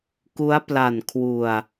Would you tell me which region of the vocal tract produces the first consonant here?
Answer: velum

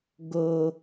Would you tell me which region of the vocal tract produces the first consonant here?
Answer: velum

